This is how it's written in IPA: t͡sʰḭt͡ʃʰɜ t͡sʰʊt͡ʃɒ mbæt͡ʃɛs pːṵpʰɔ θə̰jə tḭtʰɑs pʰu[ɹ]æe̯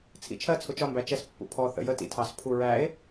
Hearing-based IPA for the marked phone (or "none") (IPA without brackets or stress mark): ɹ